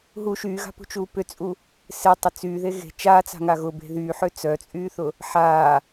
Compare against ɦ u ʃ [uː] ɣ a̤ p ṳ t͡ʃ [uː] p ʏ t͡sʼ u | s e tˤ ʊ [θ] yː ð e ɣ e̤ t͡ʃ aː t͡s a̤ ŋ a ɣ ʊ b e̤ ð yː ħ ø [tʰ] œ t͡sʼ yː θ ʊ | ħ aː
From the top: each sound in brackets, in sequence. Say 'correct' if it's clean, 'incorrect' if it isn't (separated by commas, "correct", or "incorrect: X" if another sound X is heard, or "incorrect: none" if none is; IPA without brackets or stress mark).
incorrect: yː, correct, incorrect: t͡s, incorrect: t͡s